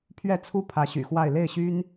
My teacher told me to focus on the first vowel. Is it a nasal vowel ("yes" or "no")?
no